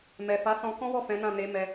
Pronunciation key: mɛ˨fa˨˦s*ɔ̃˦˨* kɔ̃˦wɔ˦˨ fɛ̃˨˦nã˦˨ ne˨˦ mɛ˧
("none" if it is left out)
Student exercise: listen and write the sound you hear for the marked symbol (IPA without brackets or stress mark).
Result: ɔ̃˧